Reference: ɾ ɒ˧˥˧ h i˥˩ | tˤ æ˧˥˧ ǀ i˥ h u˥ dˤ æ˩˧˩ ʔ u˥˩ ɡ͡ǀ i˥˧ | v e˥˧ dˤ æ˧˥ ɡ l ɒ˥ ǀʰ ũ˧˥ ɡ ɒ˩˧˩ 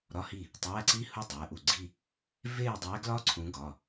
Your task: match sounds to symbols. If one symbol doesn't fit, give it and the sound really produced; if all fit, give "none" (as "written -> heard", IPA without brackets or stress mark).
none